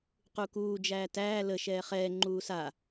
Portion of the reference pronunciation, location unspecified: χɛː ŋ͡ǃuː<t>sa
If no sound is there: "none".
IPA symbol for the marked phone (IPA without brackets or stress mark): none